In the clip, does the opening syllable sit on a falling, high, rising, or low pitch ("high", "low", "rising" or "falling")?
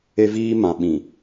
high